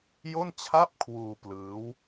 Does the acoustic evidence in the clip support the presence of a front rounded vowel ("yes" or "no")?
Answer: no